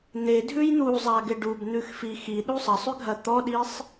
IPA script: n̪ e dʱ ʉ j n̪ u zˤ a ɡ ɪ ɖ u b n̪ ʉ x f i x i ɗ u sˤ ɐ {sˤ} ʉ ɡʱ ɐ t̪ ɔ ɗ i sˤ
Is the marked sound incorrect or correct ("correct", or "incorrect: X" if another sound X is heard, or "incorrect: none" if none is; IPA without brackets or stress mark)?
correct